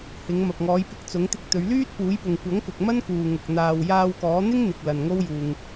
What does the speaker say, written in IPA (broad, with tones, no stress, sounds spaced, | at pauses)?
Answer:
h ɪ˨˧ ŋ m ɐ˨ p̚ ŋ ɔː˨˧ j p ɪ˧ k̚ t͡s ʊ˨˥ ŋ t̪ ɪ˧ k̚ t̪ ɵ˨˧ ɥ l yː˥ t̚ p uː˨˥ j p ʊ˨ ŋ kʷ ɐ˨˥ ŋ k ʊ˨ k̚ m ɐ˥ n k uː˨ ŋ ʊ˨ k̚ n̪ aː˨ w j aː˧ w k ɔː˨˥ n̪ ɪ˥ ŋ n̪ ɪ˨ k̚ l ɐ˨ n ŋ o˥ w j uː˨ ŋ